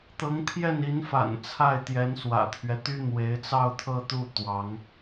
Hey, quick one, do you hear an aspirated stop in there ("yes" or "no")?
yes